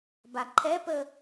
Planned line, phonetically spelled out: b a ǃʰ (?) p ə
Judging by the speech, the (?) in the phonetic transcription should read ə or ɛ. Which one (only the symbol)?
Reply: ɛ